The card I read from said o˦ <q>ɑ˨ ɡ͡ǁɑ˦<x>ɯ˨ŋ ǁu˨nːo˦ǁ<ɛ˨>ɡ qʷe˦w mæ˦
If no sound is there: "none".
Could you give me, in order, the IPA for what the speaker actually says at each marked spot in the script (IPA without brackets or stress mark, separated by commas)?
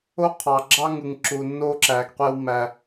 qʰ, ŋ, æ˨